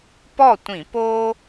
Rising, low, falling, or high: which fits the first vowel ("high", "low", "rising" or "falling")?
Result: falling